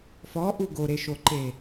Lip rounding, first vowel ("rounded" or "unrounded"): rounded